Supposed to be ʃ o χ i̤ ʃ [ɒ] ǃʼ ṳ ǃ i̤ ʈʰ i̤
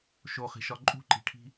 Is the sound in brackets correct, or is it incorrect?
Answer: correct